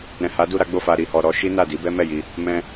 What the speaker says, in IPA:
ɾ ɛ̃˨ h a˨˦ d u˦˨ ɾ a˨˦ ɡ͡b o˦˨ f a˧ ɾ i˧ h ɔ˧ ɾ ɔ˦ ʃ i˦ n a˦˨ d i˨˦ b ɛ˦ m ɛ˦˨ j i˧ | m ɛ̃˧

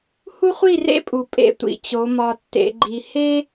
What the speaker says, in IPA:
h u˦ χʷ i˦˨ r ḛ˦ pʼ u˨ pʼ ḛ˧ tʷ ḭ˨ t͡ɕ o˨˦ m ɒ˧ tː ḛ˨˦ ɡ͡ǃ i˧ h e˦

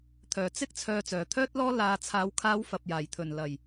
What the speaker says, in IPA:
t̪ʰ œː˨˩ t͡s ɪ˥ k̚ t͡sʰ œː˨˧ t͡s œː˨˩ t̪ʰ œː˥ t̚ l ɔː˥ l aː˨ t͡sʰ aː˨˧ w kʰ aː˧ w f ɐ˨ p̚ j aː˨˩ j t̪ʰ ɵ˨˩ n l ɐ˨˩ j

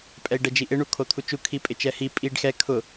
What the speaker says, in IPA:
pʼ ɛ i̯ ɖ ɛ d͡ʒ i ʔ ɪ ɳ u kʰ o t̪ʰ u t͡ʃ u kʰ i pʼ ɪ t͡ʃ ɛ h i pʼ i ɖ x ɛ kʰ ʊ

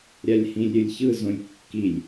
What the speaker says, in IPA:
ɾʲ a lʲ h ĩ lʲ ɾʲ ɯ lʲ ç ɯ z õ lʲ kː i lʲ

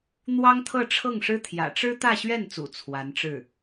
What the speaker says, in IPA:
n̪ w ɑ˥ ŋ t̪ʰ ɤ˥˧ ʈ͡ʂʰ ɤ˥˩ ŋ ʂ ɻ̩˥ t̪ʰ j ä̰˨˩ ʈ͡ʂ ɻ̩˥ t̪ ä˥˧ ɕ ɥ ɛ˥˩ n t͡s ṵ˨˩ t͡sʰ w a˧˥ n ʈ͡ʂ ɻ̩˥˩

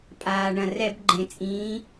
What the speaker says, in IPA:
pʼ aː˩ ɳ ɐ̃˩ r ɛ˧˩˧ b ɡ͡ǃ ẽ˩ t͡sʼ ĩː˩˧

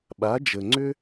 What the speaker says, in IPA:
ɓ a˩˧ d͡ʒ ə˩ ŋ͡ǀ ʏ˥

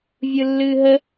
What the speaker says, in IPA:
vʲ ɯ lː ɨː ɦ ə

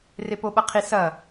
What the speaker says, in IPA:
r e p o ɓ ɐ qʰ i s ɐ

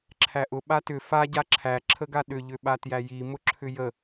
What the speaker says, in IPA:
ǁʰ æ ʔ ʊ ɓ a t ʏ f a ɟ a ǁʰ æ ǁʰ ə ɡ a ɗ ʏ ʎ ʏ ɓ a t j æ j i m ʊ ǁʰ ʏ j ə

